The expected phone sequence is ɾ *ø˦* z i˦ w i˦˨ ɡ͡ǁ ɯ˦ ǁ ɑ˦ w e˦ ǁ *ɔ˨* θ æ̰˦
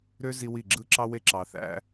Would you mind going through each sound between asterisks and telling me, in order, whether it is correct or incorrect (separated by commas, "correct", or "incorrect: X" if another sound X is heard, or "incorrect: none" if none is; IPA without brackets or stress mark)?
correct, incorrect: ɑ˨